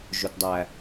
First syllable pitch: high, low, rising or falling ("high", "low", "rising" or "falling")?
high